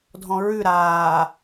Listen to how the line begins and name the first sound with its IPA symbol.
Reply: dʱ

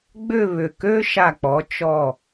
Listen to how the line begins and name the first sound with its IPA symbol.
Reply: ɡ͡b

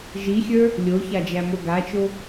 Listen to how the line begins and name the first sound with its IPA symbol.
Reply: ʒ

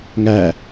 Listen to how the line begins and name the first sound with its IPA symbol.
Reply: ŋ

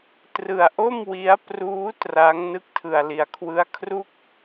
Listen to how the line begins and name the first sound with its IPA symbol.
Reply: t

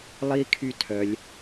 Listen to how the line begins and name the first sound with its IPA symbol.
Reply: lˠ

